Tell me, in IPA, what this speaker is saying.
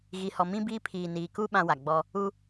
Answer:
ɣi˨hɔ˨mĩ˦biː˦ pʰiː˨niː˨ku˦ ɓã˦wa˨ ɡ͡bɔ˦ | u˦

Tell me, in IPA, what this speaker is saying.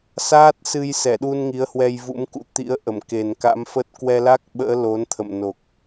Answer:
saː˦˥t̚sɨ˧jsɛ˧˩ɗu˧n ŋi˨˦ə̯hwɛ˧jvṵ˧˥mkṵ˧˥ t̪ḭ˧˥ə̯ʔə˧˩m ke˨˩nka̰˧˥mfə˦˥t̚ kwɛ˧la˦˥k̚ɓə̰ː˧˥ lo˨˦nt̪ʰə̰˧˨m no˨˩k̚

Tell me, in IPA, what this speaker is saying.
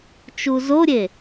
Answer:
t͡ʃuzoɾʲe

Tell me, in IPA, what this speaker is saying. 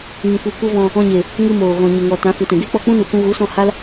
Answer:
ŋĩ˨kʷi˨ kʷə˦vɔ̃˧ | ɔ̃˧ ɲe˨ | ŋɨ˧moː˨ɣɔ̃˨ ɲə˨ŋɔ˨ tã˨˦fɨ˨tɛ̃˨ ɡe˦k͡pɔ˧k͡pũ˦ nu˧kʷũ˦ ɣu˨˦sɔ̃˧ ha˦l

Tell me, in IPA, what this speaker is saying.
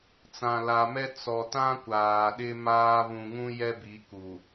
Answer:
t͡sã˨la˨mɛ˦ t͡sɔ˨tã˦ kʷaː˨ɗɪ˦maː˦ βũ˨ŋũ˦ jɛ˦bi˨˦ ku˨

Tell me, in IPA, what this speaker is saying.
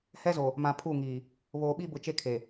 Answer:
hɛ˦zo˨ | mã˨pʰu˦˨ŋiː˨ | βoː˨ɓi˦bʊ˨ t͡ʃe˦kʰe˨

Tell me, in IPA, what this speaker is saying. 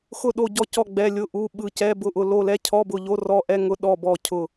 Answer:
xʊ˦˨ɗo˦˨ɟɔ˦˨cɔ˦˨ ɡ͡bɛ˧˥˧lʲʊ˧˥˧ʔu˧˥˧ɓɯ˦˨ cɛ˧˥˧bʊ˦˨ʔʊ˦˨ lo˦˨lɛ˧˥˧cʰɔ˧˥˧bʊ˦˨ ʎo˧˥˧rɔ˧˥˧ʔɛ˧˥˧ŋʊ˧˥˧ ɗɔ˦˨bɔ˦˨cʰʊ˦˨

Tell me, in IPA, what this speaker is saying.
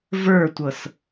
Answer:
və˞tʷɤs

